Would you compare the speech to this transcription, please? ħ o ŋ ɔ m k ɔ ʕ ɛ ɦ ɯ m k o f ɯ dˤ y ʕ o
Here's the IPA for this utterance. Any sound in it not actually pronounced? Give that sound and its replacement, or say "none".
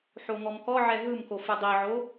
y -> i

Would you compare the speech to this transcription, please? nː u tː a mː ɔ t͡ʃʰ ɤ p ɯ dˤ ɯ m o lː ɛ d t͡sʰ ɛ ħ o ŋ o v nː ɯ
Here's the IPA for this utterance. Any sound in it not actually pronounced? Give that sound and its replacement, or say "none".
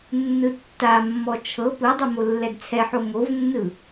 u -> ɯ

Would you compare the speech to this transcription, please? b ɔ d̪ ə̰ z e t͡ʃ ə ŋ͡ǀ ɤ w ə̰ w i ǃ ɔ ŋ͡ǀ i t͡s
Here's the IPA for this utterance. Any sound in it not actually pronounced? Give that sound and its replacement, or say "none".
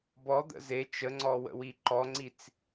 ɤ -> ɔ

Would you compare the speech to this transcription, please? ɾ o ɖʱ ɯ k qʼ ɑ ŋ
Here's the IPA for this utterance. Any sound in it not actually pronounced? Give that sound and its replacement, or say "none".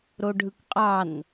ŋ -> n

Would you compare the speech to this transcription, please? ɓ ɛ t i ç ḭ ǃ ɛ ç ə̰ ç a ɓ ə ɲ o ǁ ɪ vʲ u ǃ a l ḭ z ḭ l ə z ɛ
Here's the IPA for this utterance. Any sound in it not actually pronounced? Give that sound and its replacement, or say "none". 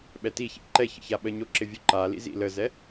none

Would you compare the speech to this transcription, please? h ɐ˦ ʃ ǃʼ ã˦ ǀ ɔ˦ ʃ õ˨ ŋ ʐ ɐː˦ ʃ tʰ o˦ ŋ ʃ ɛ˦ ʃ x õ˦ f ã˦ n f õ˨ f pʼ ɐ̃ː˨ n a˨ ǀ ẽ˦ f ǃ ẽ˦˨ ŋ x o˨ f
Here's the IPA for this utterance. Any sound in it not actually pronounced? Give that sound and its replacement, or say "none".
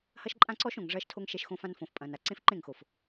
none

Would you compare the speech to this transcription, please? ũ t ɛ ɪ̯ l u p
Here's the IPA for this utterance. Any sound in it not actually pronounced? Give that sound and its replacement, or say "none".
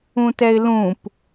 u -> ũ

